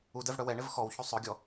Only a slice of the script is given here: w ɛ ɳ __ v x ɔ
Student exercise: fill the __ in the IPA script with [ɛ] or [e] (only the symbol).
e